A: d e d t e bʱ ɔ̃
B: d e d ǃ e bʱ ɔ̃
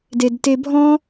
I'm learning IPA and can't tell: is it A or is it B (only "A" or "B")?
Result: A